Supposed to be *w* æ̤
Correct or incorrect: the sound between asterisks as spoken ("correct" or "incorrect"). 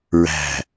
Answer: incorrect